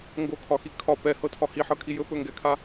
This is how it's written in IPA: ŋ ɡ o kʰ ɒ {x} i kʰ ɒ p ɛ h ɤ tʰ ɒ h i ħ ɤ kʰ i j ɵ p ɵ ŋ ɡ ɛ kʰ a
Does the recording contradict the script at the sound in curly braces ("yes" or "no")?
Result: no